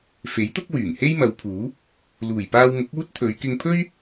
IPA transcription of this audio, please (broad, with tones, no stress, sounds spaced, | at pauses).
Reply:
f e˨˥ j t̪ ʊ˥ k̚ w yː˨˩ ŋ h e˥ j m ɐ˨˧ w pʰ uː˨˥ | l uː˨˩ j p aː˧ w ŋ ʊ˨˥ k̚ uː˥ t̚ t̪ʰ ɵ˨˧ ɥ k ɪ˧ ŋ pʰ ɵ˥ ɥ